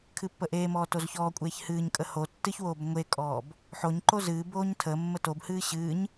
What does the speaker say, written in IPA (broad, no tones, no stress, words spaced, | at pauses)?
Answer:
kʰɨpːəʔeːmɔː tozçɔːkʷʼeːç hɨːɲkʼə ho tːɨçwoːb ŋʷekʼɔːb | ħoɲǃo zɨːboːɲ tʰə mːətobhɨː ɕɨːɲ